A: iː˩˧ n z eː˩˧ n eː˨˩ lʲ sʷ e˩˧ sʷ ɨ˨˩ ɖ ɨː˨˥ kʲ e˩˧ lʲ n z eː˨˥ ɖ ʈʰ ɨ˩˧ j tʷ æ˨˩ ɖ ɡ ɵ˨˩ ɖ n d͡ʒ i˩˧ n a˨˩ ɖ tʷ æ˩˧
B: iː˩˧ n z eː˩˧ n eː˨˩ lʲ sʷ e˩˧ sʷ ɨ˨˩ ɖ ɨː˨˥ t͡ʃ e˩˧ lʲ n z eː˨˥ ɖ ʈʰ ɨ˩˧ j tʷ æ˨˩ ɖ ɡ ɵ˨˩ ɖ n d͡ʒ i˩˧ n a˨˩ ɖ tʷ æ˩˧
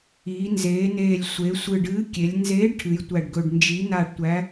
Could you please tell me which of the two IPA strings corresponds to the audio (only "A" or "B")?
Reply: A